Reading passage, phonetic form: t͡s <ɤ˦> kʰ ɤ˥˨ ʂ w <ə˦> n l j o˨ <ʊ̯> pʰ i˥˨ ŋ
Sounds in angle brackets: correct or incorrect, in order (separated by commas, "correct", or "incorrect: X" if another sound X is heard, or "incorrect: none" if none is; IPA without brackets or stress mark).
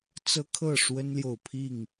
correct, correct, correct